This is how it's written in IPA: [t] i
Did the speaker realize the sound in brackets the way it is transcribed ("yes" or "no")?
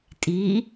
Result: no